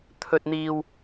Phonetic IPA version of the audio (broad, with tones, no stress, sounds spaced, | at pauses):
t̪ʰ ɵ˨ t̚ n̪ iː˨ w